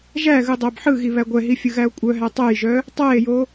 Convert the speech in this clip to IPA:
ʒ æ ɣ ɯ dˤ æ b ħ ɯ ɣ i β æ ɡʷ ɛ ɦ i fʲ ɯ ɣ æ o̯ kʷʼ œ ɦ æ tˤ ɛ j ʒ œ | tˤ æ e̯ j o

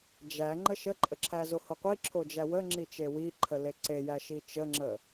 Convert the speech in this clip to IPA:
d͡ʒ æ ŋ͡ǃ ə ʃ ə ǃʼ ə ǁʰ æ z o h o qʷ i ǁʰ o d͡ʒ æ w ə ŋ͡ǁ i t͡ʃ e w i ǃʰ ə l e ǀ e j æ ʃ i t͡ʃ ə ŋ͡ǁ ə

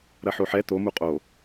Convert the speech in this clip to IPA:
ɾ ɐ ħ o ħ ɛ t̪ o m u qʼ o

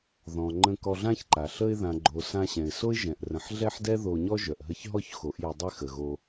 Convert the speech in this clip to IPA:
ð ɔ̃˨ ŋ͡ǃ ə̃˧ k ɔ˧ ɮ ã˦ ç ǃ a˨ ɬ ə˧ ɪ̯ ð ã˨ ɡ͡ǃ o˨ s ã˧ ɕ ɛ̃˨ ɪ̯ s o˦ ɪ̯ ʒ ɛ̃˨ ʔ r ə̃˨ ħ ɮ ɛ˦ ħ d ɛ˦ ð o˧ ɲ ɔ˦ ʒ œ˨ ʔ ɦ ə˧ ç ɦ ɔ˦ ç x o˨˦ ʔ j ɪ˧ dˤ ɪ˦ x ə˨ ɣ o˧

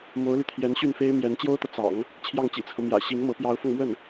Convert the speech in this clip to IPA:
m o˧˥ ʊ̯ l y˧ t̪ʰ j ɛ˧˥ n ɕ y˥˩ n f e˥ ɪ̯ m j ɛ˧˥ n t͡ɕ j o˥ ʊ̯ t̪ ɤ˨ t͡s ɑ̰˨˩˦ ŋ | t͡ɕʰ j ɑ˥˩ ŋ t͡ɕ ḭ˨˩ t͡sʰ ɤ˦ m j ä̰˨˩ ɕ i˧˥ ŋ m ɤ˧˥ p j ɑ˧˥ ʊ̯ f ɤ˧ ŋ m w ə˥˩ n

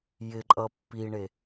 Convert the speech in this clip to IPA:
j ɪ ǃʼ ʌ pː i ɳ e

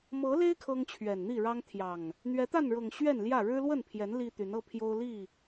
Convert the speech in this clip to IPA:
m ɤ˨˦ l e˦ ɪ̯ kʰ ɤ˦ ŋ t͡ɕʰ ɥ ɛ˨˩ n n̪ i˥˨ ɻ ɑ˦ ŋ t̪ʰ j ɑ˨˩ ŋ | n̪ ɥ ɛ˨˦ t̪ a˥˨ n ɻ ɤ˨˩ ŋ ɕ ɥ ɛ˥˨ n l j ä˥˨ ɻ ɻ̩˦ l w ə˥˨ n pʰ j ɛ˨˦ n l i˦ t̪ y˨˦ n ɤ˦ pʰ j o˦ ʊ̯ l i˥˨

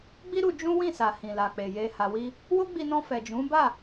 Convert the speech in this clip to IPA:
ɡ͡b i˦ ɾ u˧ d͡ʒ ũ˦ w ĩ˦˨ s a˨ h ĩ˨ l a˨ k͡p e˨ j e˨ h a˨ w i˧ | w o˦ ɡ͡b i˧ n ɔ̃˧ f ɛ˨ d͡ʒ ũ˨˦ b a˦˨

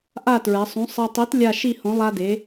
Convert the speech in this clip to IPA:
ʔ a˥˧ t ɹ ɛ˩˧ sˤ ũ˨˥ sˤ ɛ˧ tˤ i˨˥ t lʲ a˥˧ ʃ i˥˧ h õ˨˥ lˠ a˧ d e˩˧

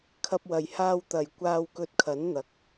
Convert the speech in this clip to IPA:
kʰ ɐ˧ p̚ w ɐ˨ j h aː˧ w t̪ ɐ˨ j kʷ aː˧ w k ɵ˧ t̚ kʰ ɐ˨˥ n n̪ ɐ˨˥ k̚

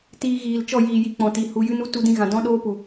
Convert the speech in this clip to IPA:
t iː˧ ɣ iː˨ l t͡ʃ ɔ˦˨ j iː˨ j i˧ k͡p ɔ̃˨ t i˨ h u˧ j ɨ˦ n u˦ t u˦ d ĩ˦ ɣ ã˧ d ɔ̃˦ ɗ oː˦ p u˨

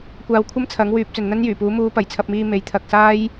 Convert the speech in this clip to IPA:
kʷ aː˧ w kʷʰ ɐ˥ m t͡sʰ ɐ˨˥ ŋ w yː˨ p̚ t͡s ɵ˨ n n̪ ɐ˥ n j yː˨˩ p uː˨˥ m uː˨˧ p ɐ˨˩ j t͡sʰ ɐ˧ p̚ m iː˧ m e˨˥ j t̪ʰ ɐ˨ k̚ s aː˥ j

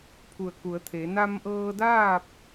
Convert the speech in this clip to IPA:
pʰ u˧˩ ə̯ k u˩˧ ə̯ t̪ʰ e˩˧ n a˧ m ʔ ɤː˧ d aː˥˨ p̚

